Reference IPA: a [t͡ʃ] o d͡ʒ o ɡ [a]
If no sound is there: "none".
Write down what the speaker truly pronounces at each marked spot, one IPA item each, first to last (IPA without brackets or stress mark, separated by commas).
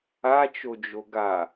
t͡ʃ, a